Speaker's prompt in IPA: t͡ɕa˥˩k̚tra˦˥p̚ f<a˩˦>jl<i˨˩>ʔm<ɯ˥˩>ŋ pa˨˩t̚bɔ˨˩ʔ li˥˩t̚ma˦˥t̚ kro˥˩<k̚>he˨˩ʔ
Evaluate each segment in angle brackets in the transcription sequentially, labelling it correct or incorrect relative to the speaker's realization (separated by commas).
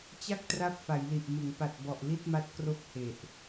correct, correct, incorrect, correct